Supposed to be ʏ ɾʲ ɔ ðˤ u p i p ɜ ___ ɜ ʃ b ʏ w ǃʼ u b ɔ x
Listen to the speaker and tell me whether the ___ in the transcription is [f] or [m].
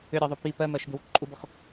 m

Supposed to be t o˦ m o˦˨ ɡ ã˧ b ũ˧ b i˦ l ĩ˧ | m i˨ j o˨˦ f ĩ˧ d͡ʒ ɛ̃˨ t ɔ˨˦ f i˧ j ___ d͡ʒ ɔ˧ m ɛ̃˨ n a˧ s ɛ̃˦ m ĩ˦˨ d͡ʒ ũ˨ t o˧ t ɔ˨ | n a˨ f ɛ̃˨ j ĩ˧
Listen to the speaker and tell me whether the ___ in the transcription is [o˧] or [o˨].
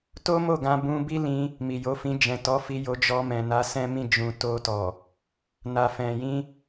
o˧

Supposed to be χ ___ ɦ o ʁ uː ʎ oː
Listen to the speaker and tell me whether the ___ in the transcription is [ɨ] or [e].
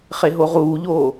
e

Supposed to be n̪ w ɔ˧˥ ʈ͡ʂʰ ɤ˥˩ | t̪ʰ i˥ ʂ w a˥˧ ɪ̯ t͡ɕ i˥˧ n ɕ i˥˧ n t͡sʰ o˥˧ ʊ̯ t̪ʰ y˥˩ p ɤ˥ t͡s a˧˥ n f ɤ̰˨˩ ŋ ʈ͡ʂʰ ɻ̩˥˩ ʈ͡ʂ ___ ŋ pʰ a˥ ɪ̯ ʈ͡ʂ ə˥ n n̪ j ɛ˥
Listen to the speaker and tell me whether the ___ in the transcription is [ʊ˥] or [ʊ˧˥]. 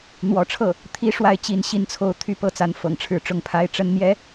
ʊ˥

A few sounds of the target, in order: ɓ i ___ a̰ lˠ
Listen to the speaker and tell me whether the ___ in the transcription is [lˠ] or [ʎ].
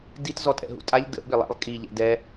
lˠ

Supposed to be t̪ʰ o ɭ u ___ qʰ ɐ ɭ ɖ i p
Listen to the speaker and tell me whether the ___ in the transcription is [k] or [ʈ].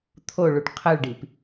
ʈ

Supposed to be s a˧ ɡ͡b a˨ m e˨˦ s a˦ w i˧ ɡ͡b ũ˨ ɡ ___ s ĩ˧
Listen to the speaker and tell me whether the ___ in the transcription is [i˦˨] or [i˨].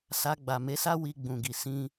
i˨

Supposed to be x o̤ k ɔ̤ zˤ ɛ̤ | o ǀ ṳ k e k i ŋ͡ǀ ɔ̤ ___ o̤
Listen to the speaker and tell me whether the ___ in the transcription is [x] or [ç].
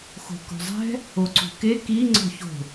ç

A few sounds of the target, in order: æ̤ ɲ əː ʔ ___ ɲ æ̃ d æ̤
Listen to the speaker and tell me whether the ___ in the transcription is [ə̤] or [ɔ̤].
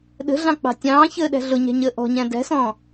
ɔ̤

